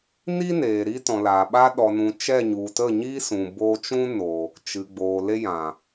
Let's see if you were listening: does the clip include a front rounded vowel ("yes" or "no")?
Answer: no